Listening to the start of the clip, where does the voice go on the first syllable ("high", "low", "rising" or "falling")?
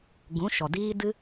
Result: rising